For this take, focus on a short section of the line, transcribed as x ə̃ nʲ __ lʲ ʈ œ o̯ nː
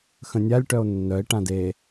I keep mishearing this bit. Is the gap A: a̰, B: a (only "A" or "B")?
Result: B